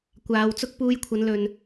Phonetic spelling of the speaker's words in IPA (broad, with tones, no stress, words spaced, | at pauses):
kʷaː˨˧wt͡sʊ˥k̚ puː˧jkʷʰɐ˨˧n lɵ˨n